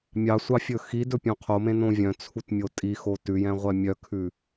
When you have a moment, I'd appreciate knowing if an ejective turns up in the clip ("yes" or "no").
yes